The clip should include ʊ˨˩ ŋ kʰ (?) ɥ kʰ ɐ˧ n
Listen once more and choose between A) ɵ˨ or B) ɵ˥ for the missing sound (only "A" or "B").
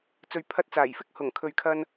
A